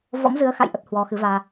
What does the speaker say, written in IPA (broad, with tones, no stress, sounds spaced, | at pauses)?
v ɔ̰˧˥ m z ɨ˨˦ ə̯ x a̰˧˨ j ʔ ə˦˥ t̚ h w ɔ˨˦ x ɨ˨˦ v aː˧